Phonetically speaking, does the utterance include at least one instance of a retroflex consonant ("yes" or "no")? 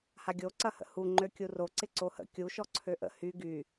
no